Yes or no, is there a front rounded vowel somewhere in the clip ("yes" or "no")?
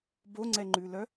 yes